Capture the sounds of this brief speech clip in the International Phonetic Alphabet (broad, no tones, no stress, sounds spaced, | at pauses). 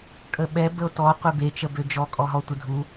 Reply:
kʼ ə ɓ ɛ b ə o̯ t ɔ qʷ e b e t͡ʃ ə b ø d͡ʒ ɔ kʼ ɔ ɦ ɔ tʷ ə dʱ u